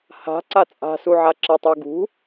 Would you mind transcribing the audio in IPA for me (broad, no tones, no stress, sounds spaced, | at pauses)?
h a̤ ǀ a t͡sʼ a̤ s u ʕ a ǁ a tˤ ə˞ ɡ ṳ